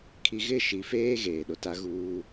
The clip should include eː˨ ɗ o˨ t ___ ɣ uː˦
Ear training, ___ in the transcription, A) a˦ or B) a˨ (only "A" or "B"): A